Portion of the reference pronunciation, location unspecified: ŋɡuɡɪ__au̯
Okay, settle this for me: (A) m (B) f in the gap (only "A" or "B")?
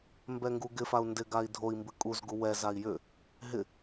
B